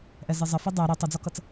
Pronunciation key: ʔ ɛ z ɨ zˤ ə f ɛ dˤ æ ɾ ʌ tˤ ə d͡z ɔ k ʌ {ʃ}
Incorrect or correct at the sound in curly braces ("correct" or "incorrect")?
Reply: incorrect